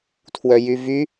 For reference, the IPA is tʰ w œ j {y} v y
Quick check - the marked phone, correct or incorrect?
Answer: correct